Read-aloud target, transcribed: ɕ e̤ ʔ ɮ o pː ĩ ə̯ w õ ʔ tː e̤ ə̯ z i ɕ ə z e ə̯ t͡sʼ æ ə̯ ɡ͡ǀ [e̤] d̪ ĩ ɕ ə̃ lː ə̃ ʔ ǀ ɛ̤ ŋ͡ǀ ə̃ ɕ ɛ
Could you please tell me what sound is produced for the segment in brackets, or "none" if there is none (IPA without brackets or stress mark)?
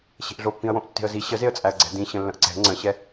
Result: ɛ̤